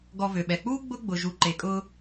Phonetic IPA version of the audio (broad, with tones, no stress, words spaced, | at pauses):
ɡɔ˨vø˩ɓɛ˩k͡puː˥ ɡ͡bʊ˥ɡ͡bʊ˨ ʒu˨ǃe˨kʼʊː˦